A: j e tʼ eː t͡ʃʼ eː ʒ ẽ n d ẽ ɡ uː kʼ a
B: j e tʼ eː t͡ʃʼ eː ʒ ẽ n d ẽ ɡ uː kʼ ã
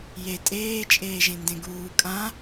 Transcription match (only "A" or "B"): B